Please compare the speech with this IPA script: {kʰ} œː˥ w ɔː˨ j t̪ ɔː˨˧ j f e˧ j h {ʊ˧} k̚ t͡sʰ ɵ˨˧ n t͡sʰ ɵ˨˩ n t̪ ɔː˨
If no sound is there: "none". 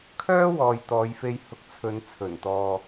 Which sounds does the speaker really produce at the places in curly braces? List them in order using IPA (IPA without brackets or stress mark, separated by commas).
kʰ, ʊ˨